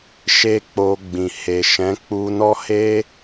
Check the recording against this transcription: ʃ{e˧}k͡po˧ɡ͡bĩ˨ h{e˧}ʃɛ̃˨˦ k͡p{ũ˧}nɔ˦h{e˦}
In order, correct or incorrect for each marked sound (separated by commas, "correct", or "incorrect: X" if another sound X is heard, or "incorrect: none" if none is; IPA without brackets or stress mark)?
incorrect: e˦, incorrect: e˨, incorrect: u˧, correct